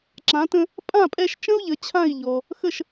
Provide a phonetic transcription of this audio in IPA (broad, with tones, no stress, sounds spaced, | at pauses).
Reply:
ǁ ã˩˥ t ə̃˧ | pʼ ã˥˩ pʼ ɛ˧ ʃ t͡ʃ ə̃˥ u̯ ʎ ə˩˥ t͡ɕʰ ã˥˩ i̯ ʎ ɔ˩ | x ə˥˩ ʃ